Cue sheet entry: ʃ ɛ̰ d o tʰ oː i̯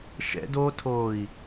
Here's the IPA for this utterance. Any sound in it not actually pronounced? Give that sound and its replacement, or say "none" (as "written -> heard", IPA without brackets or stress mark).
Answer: none